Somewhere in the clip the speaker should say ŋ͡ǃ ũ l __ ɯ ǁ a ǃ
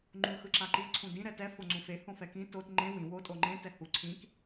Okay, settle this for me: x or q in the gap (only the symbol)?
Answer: x